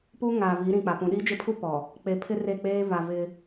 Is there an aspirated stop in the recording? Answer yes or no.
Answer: yes